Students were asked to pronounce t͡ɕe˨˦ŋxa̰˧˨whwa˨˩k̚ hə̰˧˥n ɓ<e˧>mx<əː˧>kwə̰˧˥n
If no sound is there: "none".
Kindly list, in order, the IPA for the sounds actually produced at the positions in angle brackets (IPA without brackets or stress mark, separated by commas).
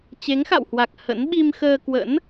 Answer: i˧, əː˧